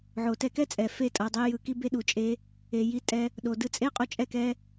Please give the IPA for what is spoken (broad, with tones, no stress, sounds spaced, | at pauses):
ʕ o˨ t ɛ˧ k ɛ˦ t͡sʼ ɛ˨ f e˦˨ tʼ ʌ˨ dˤ e˧ j ɯ˨ k i˦ b e˧ ɗ u˨ t͡ʃʼ e˦ | e˨ j i˦ tʼ ɛ˧ | ɗ o˨ d ɯ˧ t͡sʼ e˦ qʼ o˧ t͡ʃʼ ɛ˦˨ k ɛ˧